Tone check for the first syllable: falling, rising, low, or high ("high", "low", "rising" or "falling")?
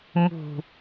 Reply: low